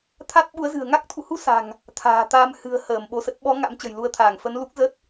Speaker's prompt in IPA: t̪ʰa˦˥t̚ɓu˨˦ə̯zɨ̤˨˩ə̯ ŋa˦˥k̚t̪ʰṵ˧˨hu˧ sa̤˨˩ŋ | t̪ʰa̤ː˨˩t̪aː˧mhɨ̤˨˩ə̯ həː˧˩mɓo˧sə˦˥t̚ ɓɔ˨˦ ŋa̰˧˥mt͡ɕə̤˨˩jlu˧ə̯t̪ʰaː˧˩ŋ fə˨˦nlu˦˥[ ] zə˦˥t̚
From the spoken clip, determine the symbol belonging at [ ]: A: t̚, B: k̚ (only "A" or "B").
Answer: B